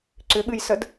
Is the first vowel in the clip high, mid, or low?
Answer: high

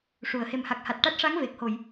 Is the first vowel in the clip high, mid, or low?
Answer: high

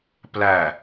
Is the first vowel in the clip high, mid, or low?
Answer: low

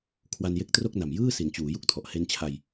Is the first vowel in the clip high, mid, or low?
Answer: low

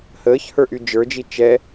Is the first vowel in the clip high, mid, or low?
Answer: mid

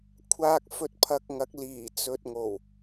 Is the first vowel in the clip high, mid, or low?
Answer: low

